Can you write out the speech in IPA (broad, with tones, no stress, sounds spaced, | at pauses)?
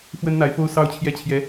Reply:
f w ə˥ n n̪ a˧˥ ɪ̯ f o˥ ʊ̯ s ɑ˥ ʊ̯ t͡ɕʰ j ɛ˥˩ t͡ɕʰ j ɛ˧˥